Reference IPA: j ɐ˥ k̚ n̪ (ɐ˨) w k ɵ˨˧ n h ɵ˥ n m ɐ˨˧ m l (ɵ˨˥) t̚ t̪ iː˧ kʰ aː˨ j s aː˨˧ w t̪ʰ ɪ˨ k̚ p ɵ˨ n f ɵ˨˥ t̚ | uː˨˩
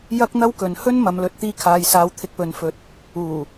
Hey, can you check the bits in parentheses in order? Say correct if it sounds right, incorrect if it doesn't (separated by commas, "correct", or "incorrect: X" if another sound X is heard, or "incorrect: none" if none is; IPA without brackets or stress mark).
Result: incorrect: ɐ˥, correct